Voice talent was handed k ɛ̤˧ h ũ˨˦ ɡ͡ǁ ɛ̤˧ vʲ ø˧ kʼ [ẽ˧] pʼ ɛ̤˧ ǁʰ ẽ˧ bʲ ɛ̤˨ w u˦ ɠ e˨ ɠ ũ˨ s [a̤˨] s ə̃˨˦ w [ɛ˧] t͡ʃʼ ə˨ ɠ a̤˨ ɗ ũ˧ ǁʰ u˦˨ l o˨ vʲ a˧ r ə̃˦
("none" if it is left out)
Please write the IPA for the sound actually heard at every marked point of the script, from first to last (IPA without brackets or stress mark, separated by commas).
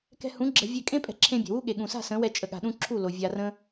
ẽ˦, a̤˦˨, ɛ˧